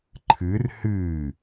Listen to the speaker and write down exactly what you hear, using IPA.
ǃʰɨr hɨː

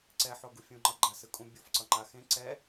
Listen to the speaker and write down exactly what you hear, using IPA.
ǀɛħo ɡufʲũŋ͡ǃʌ ɡ͡ǃasɯkʼũ bʲofǀʌŋ͡ǃa xẽ ǀɛ

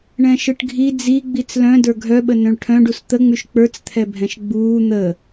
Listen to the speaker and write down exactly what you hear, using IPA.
ɳɛ̃ʃɯʈɡʱi d͡zi ɡ͡bit͡slœ̃ də˞ɡʱœɓə nœ̃ɭʈʰœ̃ɖus t̪əŋ͡myʃ k͡pə˞t͡st̪ʰɛbʱɛ̃ʃ ɡ͡buː n̪ə

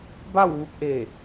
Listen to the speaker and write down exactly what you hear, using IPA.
ba˥˨wʋu˧p̚ʔe˧˩

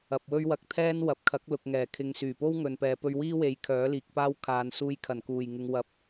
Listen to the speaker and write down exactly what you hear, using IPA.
ɐ˨p̚wɵ˥ɥwɐ˧k̚ t̪ʰɛː˥n wɐ˨p̚kʰɐ˨˥k̚lʊ˨k̚ ŋɛː˨˩kʰɪ˨˧ŋ syː˨˩po˥wŋɵ˨npɛː˨ pɵ˧ɥwiː˥we˨˥j kʰœː˨˥liː˨k̚paː˥w kʰaː˨nsuː˧jkʰɐ˨˩nkuː˨˩j ŋɪ˨ŋwɐ˨p̚

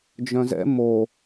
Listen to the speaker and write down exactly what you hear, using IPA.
d͡ʒœ̃zɛ̰ mo

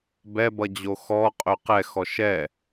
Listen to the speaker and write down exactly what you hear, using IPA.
bɛbʌd͡ʑo xɔqʼɵ qɛxɔ ʃɛ

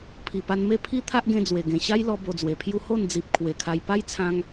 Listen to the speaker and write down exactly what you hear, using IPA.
pʰi˨˩pa˧nme˥˧ pʰi˦t̪ʰa˦ʔɡẽ˧ d͡zwe˨˩ ɡẽ˨˩ɕa˦jlɔ˧ bo˧d͡zwe˨˩pʰju˦ ho˥˧nd͡zi˨p̚ kʰwe˨˩kʰa˧j pa˦jt͡sʰã˧ŋ

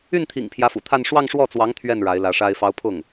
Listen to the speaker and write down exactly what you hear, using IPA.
y˥˩nt̪ʰḭ˨˩ŋ pʰjä˧˥fṵ˨˩t̪ʰa˥˧n ʂwɑ˥˧ŋʂwɔ˥˩t͡swɑ˧˥ŋ t̪ʰɥɛ˥˩n ɻa˧˥ɪ̯lä˧˥ʂa˥ɪ̯ fɑ˧˥ʊ̯pʰʊ˥˩ŋ

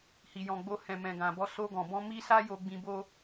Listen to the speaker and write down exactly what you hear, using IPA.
hi˨jɔ̃˨ɡ͡bo˧ hɛ̃˨mɛ̃˨ɡã˨bɔ˧ so˧ ɡɔ̃˨bɔ̃˧ mi˦sa˦jo˧ ɡ͡bĩ˧bo˦

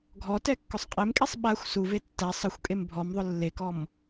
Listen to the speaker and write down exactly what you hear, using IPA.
ɡʱɔtɛkːʊsˤ qʼemkʼesˤ ɓaxʷ suve tːæ sˤəxʷkʼem bʱɔmðˤʊ lːekɔm

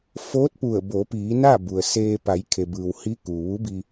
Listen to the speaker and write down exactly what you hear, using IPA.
foː˧˥t̚pu˧˩ə̯bo˩˧piː˩˧ na˥˨ bu˩ə̯seː˧ pa˩˧jkʰe˩bɯː˩w hi˧˥ kuː˩ʋu˧˥bi˧

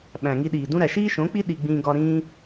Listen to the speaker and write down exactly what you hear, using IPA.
ɓæ̃˨ŋi˧ɗiː˨dũ˦ ɾæ˨ʃiː˦ʃõ˨˦k͡pi˦ ɗi˧ɡ͡bĩː˧ ɡɒ˧ ɾĩː˦

